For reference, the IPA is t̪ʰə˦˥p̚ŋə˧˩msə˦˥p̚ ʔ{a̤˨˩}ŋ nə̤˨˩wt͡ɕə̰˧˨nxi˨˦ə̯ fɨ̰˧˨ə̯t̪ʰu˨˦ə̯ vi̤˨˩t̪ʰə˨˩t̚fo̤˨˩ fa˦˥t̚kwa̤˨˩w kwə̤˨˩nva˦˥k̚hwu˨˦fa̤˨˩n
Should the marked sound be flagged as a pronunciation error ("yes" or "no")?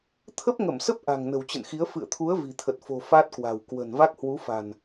no